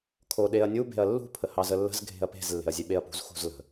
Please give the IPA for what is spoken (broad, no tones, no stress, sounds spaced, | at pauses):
kʰ o ɗ e ɐ̯ nʲ u b e̤ ɐ̯ lː ṳ pʰ ə h ɑ z ə lː ə̤ z ɡʱ e̤ ɐ̯ p e̤ z lː e̤ ɐ̯ zʲ e ɓ e ɐ̯ p ṳ z x ṳ z l ə̤